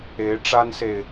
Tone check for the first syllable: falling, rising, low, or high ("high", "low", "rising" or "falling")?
rising